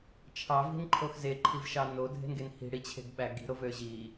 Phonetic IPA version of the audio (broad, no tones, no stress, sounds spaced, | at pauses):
t͡ʃʰ ɑ v i̤ n ǃʰ o x z e ǃʰ i v ʃ ɑ n o dʱ e̤ n ɡ e n h i̤ ɽ i t͡ɕʰ e̤ ɡ ɓ æ ɡ i̤ ɾ o v ø ʑ i